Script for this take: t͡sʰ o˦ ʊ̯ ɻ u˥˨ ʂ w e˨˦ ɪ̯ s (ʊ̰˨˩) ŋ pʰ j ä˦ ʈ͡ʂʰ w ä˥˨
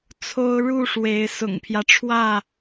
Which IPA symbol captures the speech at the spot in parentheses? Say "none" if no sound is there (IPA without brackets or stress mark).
ʊ̰˨˩